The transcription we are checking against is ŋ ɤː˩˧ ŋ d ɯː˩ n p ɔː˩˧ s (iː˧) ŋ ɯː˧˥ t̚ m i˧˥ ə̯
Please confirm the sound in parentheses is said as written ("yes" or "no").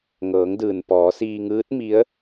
yes